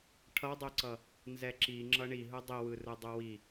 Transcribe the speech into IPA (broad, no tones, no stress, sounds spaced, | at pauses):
ʈʰ ʌ dˤ e ǀ ʌ | n z ɛ ǁ i ŋ͡ǁ ʌ ɳ i ɦ ɯ dˤ i w ɯ r ɯ dˤ u w i